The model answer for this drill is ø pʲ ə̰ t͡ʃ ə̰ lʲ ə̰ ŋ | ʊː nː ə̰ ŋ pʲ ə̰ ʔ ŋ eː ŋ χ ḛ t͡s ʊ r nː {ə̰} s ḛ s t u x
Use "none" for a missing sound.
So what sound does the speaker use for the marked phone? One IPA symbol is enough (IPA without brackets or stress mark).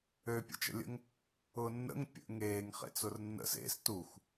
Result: ə̰